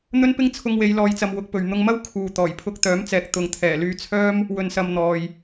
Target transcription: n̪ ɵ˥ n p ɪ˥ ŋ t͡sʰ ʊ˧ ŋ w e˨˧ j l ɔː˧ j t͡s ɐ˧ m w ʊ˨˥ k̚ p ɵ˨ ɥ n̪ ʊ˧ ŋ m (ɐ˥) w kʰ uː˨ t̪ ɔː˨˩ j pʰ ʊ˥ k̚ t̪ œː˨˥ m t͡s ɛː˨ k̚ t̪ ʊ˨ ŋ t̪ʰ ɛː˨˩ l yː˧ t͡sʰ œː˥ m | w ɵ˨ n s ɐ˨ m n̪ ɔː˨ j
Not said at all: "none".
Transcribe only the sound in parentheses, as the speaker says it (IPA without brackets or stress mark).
ɐ˥